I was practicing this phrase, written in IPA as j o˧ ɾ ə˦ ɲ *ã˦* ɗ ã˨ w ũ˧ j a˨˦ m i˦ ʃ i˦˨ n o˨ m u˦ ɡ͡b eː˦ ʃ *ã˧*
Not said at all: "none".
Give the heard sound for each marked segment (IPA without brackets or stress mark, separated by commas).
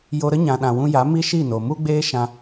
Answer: ã˨, ã˧